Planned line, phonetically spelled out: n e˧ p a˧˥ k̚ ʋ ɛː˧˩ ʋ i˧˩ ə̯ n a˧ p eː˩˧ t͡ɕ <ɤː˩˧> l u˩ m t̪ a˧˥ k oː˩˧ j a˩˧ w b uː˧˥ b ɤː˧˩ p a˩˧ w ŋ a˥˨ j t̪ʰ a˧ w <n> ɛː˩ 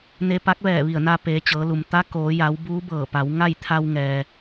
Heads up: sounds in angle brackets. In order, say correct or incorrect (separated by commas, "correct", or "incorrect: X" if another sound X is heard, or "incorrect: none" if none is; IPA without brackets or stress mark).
correct, incorrect: ŋ